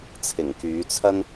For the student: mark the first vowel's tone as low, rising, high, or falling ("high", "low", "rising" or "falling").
low